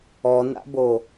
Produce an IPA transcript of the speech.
ɔ n a̰ b o

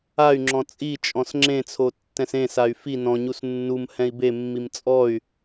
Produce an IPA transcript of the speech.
a y̯ ŋ͡ǁ ɔ̃ t͡sʼ i t͡ʃʼ ɔ̃ s ŋ͡ǁ ẽ t͡sʰ o tː ɛ̃ s ẽ s a y̯ f i n ɔ̃ ɲ u s nː u m h ɛ̃ i̯ b e mː i m t͡sʼ ɔ y̯

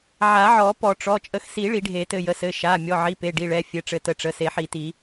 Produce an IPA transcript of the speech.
ʕ a˨˩˦ ʕ ɔ˨˩˦ p ɔ˨˩˦ ʈ͡ʂ ɔ˩˧˩ t͡ʃʼ ə˨˩˦ x s i˨˩˦ ɭ i˨˩˦ ɖʱ e˨˩˦ t ɘ˩˧˩ j ə˩˧˩ s ɘ˩˧˩ ʃ a˩˧˩ mʲ ɔ˩˧˩ ʕ i˩˧˩ p e˩˧˩ ɖ i˩˧˩ ɭ ɛ˩˧˩ fʲ ɘ˩˧˩ ʈ͡ʂ ɘ˨˩˦ t ə˩˧˩ ʈ͡ʂ ə˩˧˩ s e˨˩˦ ħ i˨˩˦ t i˨˩˦

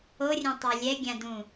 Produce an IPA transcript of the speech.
o rʲ ɛ̃ tˤ a lʲ ɛ ɡʲ ã d ũ

